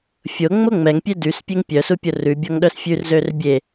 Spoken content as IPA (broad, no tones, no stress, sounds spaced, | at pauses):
fʲ o ŋ͡m o ŋ͡m ɛ ŋ pʲ e d y s pʲ e ŋ pʲ œ s u pʲ o r ʉ bʲ ɔ ŋ ɗ œ s fʲ ʉ r z ø r bʲ e